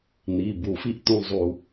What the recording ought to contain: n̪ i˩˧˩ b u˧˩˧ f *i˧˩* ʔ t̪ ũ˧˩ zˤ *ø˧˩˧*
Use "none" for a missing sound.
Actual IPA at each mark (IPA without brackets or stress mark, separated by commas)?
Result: i˧˩, u˧˩˧